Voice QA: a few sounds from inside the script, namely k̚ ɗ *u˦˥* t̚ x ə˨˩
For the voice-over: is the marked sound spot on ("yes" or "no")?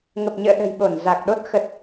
no